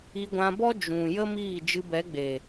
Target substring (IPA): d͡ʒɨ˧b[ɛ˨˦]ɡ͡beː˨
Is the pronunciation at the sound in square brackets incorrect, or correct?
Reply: correct